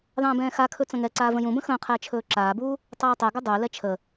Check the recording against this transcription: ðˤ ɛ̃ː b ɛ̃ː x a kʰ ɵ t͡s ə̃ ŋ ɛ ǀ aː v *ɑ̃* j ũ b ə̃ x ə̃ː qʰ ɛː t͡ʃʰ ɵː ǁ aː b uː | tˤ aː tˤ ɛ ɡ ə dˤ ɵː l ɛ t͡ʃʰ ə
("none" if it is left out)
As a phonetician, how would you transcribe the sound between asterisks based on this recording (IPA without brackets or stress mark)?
ə̃